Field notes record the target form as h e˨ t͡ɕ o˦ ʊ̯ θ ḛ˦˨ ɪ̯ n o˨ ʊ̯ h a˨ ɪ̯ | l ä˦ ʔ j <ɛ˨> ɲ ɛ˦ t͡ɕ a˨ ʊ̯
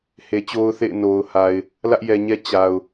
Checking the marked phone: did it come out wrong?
no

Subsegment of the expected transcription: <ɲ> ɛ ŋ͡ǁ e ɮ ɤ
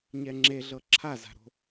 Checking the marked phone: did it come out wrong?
no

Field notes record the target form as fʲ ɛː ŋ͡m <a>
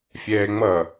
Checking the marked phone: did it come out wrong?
yes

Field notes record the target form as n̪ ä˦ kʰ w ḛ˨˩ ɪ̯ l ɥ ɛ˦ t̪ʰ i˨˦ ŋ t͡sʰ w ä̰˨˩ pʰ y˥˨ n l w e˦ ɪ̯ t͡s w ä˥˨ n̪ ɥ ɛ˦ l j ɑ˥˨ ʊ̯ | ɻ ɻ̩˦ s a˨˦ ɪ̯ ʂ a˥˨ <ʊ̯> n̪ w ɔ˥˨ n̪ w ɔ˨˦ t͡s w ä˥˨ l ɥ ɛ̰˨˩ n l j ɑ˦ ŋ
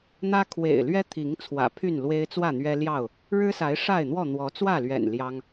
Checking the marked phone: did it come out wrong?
yes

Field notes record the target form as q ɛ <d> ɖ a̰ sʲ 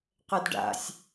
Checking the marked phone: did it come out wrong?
no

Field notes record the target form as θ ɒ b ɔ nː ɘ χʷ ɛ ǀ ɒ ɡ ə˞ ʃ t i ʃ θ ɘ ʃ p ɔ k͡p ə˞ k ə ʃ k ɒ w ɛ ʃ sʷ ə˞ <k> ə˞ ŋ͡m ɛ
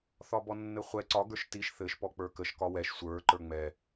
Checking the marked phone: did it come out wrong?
yes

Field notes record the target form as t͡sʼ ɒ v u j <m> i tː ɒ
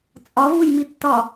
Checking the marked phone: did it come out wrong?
no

